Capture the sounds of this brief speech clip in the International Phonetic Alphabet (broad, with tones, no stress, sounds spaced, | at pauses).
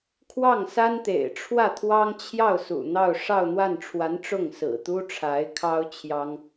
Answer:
kʰ w ɑ˥˩ ŋ s a˥ n t̪ ḛ˨˩ ɪ̯ ʈ͡ʂʰ w ä˥˩ t̪ʰ w ɑ˥ ŋ t͡ɕʰ j ɑ˥˩ ʊ̯ s ṵ˨˩ n̪ ɑ˥˧ ʊ̯ ʂ ɑ˥˧ ʊ̯ n̪ w a˥˩ n ʈ͡ʂʰ w a˧˥ n ʈ͡ʂ ʊ˥˩ ŋ s ɹ̩˨˩ t̪ u˥ ʈ͡ʂʰ a˧˥ ɪ̯ kʰ ɑ˥ ʊ̯ t͡ɕʰ j ɑ˥ ŋ